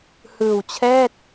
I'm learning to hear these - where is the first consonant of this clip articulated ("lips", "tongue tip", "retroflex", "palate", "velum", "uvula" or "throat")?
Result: throat